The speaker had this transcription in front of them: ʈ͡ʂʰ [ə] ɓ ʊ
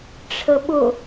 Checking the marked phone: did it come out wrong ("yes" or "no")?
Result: no